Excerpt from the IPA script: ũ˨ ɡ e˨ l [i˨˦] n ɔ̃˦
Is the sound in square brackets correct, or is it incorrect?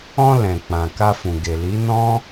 correct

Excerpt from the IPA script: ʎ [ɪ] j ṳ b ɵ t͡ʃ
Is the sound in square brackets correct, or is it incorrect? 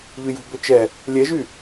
incorrect: y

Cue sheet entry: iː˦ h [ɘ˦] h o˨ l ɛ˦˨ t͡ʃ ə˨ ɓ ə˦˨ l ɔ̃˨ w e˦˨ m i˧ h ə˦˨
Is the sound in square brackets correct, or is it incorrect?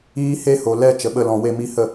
incorrect: e˦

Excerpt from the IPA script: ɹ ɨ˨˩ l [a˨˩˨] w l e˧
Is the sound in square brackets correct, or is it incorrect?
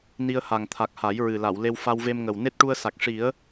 correct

